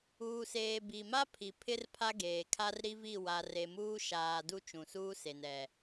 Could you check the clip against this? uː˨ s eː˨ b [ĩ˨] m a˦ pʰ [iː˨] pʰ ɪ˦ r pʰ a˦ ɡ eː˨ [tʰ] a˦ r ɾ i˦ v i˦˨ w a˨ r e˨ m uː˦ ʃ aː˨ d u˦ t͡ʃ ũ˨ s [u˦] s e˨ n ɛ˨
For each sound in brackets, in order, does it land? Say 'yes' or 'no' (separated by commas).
no, no, no, no